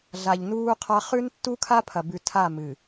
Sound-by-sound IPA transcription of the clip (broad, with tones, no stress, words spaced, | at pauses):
ɮa˨ʎnuː˦qʰa˦ χʉ˦ntːu˦kʰa˦ pʰɐ˨bʉ˨tʰa˦˨ mɨ˨